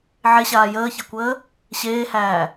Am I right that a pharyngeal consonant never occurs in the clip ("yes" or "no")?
no